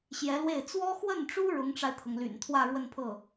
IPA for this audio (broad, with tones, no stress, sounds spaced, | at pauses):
ɕ j ɛ˧˥ l w e˥˩ ɪ̯ t͡s w ɔ˥ x w ə˥˩ n ʈ͡ʂ u˥ ɻ ʊ˧˥ ŋ ʈ͡ʂ a˧ ɪ̯ t̪ʰ ɤ˩ ŋ l y̰˨˩ n t̪ʰ w ä˥˧ ɻ w ə˥˧ n pʰ ɤ˥˩